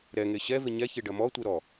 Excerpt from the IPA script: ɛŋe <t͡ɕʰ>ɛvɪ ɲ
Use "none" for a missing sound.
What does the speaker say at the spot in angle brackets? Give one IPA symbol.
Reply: ɕ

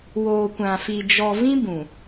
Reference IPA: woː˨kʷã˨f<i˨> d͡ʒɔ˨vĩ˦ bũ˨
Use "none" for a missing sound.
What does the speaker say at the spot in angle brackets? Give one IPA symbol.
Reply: i˨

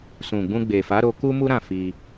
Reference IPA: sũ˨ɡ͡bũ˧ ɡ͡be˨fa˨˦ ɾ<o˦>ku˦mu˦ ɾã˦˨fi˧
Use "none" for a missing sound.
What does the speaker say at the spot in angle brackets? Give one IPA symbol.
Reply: o˧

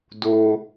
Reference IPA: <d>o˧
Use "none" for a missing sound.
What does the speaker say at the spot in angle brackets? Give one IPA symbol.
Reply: d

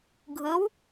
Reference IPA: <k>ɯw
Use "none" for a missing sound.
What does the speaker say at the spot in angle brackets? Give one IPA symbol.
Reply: ɡʱ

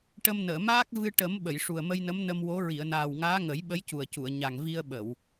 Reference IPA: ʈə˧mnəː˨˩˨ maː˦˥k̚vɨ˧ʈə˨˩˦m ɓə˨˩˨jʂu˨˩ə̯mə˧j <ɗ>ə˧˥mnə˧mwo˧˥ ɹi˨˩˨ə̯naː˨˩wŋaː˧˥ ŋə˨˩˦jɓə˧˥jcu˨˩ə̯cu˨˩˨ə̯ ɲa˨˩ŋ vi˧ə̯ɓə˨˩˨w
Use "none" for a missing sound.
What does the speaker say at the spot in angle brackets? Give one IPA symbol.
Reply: n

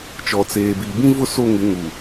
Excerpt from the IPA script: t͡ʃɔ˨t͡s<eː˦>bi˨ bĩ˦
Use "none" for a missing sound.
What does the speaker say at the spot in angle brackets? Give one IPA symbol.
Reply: eː˨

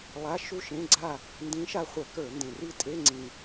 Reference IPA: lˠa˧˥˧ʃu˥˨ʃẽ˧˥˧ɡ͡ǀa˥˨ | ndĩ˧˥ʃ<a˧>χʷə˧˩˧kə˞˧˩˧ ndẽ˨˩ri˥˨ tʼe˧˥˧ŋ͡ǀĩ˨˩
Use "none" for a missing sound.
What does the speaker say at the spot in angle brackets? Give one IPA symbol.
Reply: a˧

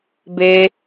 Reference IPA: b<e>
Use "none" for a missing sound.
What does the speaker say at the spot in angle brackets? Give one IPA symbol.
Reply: e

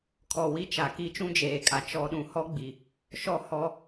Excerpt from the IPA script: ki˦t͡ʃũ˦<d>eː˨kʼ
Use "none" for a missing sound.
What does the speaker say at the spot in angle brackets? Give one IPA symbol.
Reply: d͡ʒ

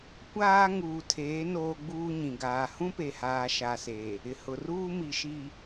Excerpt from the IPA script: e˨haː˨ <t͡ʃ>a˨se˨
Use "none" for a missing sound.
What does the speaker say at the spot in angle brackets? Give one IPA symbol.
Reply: ʃ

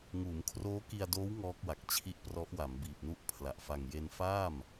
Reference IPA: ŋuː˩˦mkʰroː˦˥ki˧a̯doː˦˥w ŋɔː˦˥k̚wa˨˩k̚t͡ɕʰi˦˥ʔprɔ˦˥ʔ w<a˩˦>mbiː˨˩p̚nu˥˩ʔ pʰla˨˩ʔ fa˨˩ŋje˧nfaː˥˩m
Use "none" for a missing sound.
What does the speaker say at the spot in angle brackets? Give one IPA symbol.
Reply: a˩˦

